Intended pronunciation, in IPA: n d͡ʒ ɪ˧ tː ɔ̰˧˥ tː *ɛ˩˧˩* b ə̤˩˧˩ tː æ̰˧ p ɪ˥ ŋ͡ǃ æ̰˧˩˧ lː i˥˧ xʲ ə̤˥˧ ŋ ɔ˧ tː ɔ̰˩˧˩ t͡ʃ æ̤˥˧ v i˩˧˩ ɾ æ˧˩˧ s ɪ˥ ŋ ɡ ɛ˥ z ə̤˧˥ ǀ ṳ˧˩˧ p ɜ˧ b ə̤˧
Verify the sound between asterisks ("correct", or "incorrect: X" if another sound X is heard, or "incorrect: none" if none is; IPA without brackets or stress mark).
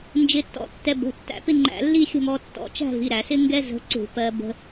incorrect: ɛ˧